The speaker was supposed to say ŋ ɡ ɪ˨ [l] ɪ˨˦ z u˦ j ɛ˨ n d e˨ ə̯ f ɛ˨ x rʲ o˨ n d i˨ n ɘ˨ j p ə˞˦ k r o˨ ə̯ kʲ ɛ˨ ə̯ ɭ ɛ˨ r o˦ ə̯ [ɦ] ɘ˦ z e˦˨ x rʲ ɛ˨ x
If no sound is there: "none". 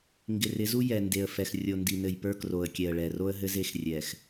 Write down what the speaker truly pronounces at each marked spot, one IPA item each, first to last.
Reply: r, ɦ

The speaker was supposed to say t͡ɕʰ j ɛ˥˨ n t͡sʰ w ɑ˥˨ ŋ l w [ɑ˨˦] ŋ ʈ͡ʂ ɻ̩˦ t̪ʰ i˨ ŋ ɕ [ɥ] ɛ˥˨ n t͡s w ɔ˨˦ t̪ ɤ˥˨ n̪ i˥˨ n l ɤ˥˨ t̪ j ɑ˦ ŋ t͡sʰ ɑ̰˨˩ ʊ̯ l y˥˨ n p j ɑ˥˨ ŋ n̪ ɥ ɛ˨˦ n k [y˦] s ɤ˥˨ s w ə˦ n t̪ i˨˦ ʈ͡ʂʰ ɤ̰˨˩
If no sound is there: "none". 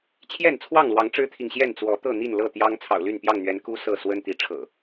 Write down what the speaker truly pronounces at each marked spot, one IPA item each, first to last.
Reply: ɑ˨˦, j, u˦

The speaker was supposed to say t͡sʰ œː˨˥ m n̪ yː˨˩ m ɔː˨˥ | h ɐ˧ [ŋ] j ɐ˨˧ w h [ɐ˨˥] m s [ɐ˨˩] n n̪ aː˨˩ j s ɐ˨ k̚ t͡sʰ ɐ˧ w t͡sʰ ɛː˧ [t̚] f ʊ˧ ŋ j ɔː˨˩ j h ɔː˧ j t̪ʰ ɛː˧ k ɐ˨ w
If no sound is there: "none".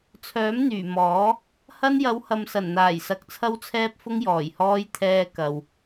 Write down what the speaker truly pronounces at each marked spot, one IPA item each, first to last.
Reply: n, ɐ˨, ɐ˨˩, p̚

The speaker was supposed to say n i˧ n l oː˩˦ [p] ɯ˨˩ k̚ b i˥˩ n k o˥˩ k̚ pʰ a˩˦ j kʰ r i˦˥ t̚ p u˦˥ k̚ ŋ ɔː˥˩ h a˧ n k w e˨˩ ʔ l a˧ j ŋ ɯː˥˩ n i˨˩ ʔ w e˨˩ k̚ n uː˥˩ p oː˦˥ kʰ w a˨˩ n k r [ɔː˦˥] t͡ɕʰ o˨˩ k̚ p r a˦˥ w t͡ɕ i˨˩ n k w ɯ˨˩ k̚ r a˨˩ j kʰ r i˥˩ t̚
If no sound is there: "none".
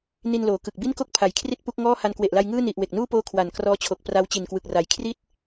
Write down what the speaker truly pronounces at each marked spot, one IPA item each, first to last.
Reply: k, ɔː˦˥

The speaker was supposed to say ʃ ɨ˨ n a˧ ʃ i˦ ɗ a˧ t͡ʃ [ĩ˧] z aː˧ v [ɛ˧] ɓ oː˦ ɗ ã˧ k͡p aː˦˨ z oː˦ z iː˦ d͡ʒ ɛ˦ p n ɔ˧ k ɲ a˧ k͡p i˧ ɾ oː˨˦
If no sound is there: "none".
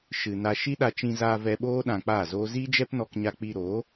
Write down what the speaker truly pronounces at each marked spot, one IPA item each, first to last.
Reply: ĩ˧, ɛ˧

